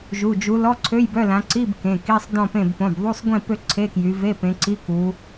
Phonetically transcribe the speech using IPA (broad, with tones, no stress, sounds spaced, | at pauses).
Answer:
ʒ u˩˧˩ d͡ʒ u˨˦ l ɔ˧˥˧ ǀʰ ø˧˥˧ j b œ˧˥˧ l ã˨˦ ǀ i˧˥˧ b k ẽ˩˧˩ k i˧˥˧ sˤ d ɔ̃˥˨ p ẽ˥˨ b p õ˩˧˩ b ðˤ u˧˥˧ sˤ ɡʷ ĩ˥˨ p ø˥˨ ǀʰ e˧˥˧ k j y˨˦ v e˧˥˧ p ẽ˨˦ ǀ i˧˥˧ k u˨˦